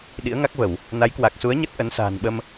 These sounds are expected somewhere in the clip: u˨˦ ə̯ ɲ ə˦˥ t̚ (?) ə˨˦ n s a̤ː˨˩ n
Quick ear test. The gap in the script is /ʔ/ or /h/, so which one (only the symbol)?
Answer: ʔ